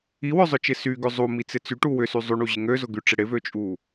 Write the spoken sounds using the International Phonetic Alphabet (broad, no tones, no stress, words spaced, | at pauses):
iwœzˤʊt͡ʃɪ syɡʏ zˤumit͡sɪ t͡syʈu wʏsy zˤyɳuʑɪ ŋøzʊɡyʈ͡ʂɪ ɽɪvøt͡ʃʼu